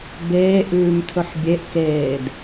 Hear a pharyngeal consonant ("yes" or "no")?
yes